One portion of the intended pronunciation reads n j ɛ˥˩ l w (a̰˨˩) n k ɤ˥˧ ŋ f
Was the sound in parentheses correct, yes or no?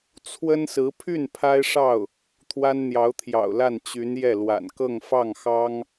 yes